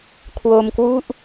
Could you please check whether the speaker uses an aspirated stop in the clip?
yes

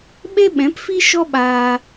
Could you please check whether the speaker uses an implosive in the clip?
yes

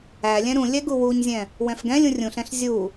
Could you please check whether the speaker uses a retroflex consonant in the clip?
no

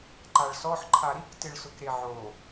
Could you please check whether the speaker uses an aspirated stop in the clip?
yes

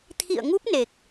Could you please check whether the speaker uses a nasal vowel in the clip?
no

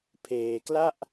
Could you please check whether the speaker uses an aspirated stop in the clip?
yes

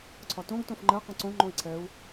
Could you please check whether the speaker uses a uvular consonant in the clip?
yes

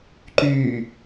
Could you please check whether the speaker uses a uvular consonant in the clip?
no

